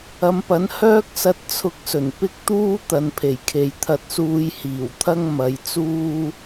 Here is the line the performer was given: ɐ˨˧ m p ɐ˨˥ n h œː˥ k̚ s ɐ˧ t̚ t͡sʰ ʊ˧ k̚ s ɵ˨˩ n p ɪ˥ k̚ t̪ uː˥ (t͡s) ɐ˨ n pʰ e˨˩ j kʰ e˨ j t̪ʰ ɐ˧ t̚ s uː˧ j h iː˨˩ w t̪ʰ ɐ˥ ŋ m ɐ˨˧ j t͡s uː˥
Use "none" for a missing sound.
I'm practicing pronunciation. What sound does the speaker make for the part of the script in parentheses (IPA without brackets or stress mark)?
t̪